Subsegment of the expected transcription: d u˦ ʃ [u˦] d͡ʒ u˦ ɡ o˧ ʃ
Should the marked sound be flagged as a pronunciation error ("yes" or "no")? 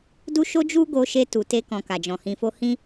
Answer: yes